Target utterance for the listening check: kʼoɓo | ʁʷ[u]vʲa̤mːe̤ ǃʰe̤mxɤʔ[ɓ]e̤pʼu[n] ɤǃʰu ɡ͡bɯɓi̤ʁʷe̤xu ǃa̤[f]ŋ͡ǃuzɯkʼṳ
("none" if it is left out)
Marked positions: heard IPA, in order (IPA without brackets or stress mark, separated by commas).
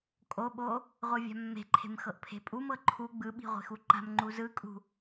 ɯ, pʰ, m, m